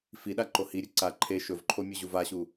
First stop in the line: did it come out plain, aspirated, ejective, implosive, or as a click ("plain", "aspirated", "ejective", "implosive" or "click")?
implosive